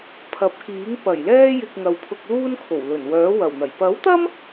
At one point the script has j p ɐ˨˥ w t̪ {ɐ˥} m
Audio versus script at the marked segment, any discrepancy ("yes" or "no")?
no